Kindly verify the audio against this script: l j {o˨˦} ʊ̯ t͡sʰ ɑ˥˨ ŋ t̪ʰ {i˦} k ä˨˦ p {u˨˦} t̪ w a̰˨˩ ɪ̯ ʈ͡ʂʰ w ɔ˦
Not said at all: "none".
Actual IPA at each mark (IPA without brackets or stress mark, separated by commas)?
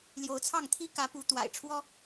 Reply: o˨˦, i˦, u˨˦